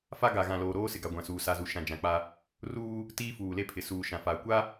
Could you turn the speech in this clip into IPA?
fa˦ɡa˨ ɣã˨loː˨ɾoː˦sɪ˨ ɡa˨ɡʷã˨suː˨ sa˨zu˨ʃã˨ d͡ʒã˨k͡pa˦ | ruː˦ | tiː˦fuː˨le˦pʰɪ˨ suː˨ ʃã˨fa˨ kʷa˦

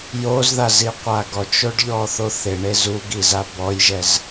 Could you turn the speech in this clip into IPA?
jozðaziqʷa ɡɔt͡ʃoɖʎɔθo θɪɳe zuɡiza bɔjʒɛz

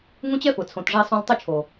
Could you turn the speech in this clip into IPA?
ŋũ˦t͡ɕɛ˦fʊ˨ t͡sʰõ˨tʐe˧sˤõ˧l tˤʊ˧ t͡ʃʰo˨

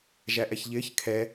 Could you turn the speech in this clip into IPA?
ʒæʔɛçʎɪːç kʰɛ

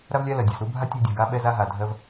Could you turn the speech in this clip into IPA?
ɾa˥vlʲa˥ lɜ˩dʲa˨zɾu˦bʱa˥ tʲɜ˦dʲa˨ɡa˦ ɓɛ˦za˦ ɦa˩dʱɜ˦v

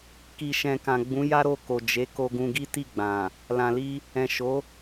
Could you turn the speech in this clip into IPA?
ki˨ʃɛ̃˨kã˨ɡ͡bũ˨˦ ja˦ɾo˦˨ko˨ d͡ʒe˨˦ko˧ɡũ˧ ɡi˦ti˦˨ɡ͡bã˨ | lã˨li˧ | ɛ̃˨ʃo˨˦

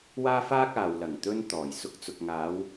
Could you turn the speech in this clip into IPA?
waː˥faː˥k̚aː˨w lɐ˨˩ŋ t̪ɵ˧n t̪ɔː˨˩jsʊ˧k̚t͡sʊ˨k̚ ŋaː˨˧w

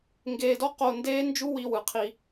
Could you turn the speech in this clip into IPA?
ŋɡeː˧dɔ˦ qo˧ndeː˦nd͡ʒu˦wi˧ wɯ˨qʰi˧

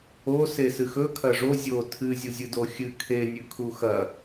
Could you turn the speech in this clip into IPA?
o sesɨxɵ kʰɐʐo zʲo tʰɨ zʲuzʲɨdoxʲɨ kʰe nʲʉkʰuxɐ

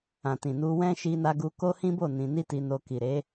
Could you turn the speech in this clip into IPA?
ã˨tĩ˨nu˧ wɛ̃˦ ʃi˧na˧ ɡu˧ko˦hĩ˦bo˦˨ nĩ˧ ni˦ti˧no˧ ki˨ɾe˨˦

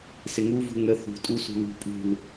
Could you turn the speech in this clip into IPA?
sɪŋuvṳ ŋə θṳtʼu sṳlṳ pʼṳl

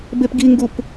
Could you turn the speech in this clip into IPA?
bepɡiŋɡup

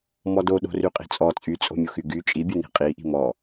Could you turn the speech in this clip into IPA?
mɔdoɗo̤ ryqʼi̤t͡sʼɔ t͡sʼyt͡sʼo̤mʲoxy ɡy t͡ʃʼibʲu ni̤qʼiʔi̤ mɔ

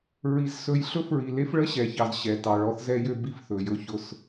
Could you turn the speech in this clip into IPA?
ɹi˨zsɵ˨jɬɵ˦fɹi˨ le˦fɭə˦ ɕɛ˨çɑ˨z ɕɛ˨ tɑ˨ɭɔ˦θzɛ˦jø˦ bi˦fθɵ˨jɵ˦çʊ˦˨s

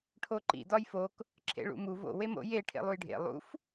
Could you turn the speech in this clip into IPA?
ʈʰoǃḭ dɒjfok | ǁʰḛɭṵmu vo̰ wemo̰ je ʈʰḛlˠujɖʱḛ lˠṵf

